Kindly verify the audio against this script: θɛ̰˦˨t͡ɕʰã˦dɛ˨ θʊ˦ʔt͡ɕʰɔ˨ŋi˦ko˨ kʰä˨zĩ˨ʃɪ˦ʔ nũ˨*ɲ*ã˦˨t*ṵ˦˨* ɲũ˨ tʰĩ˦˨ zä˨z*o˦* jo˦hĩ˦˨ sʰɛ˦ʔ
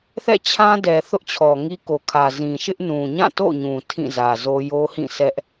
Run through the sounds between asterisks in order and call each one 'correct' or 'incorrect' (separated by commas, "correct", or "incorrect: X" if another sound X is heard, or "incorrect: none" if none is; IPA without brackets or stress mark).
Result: correct, incorrect: o̰˦˨, correct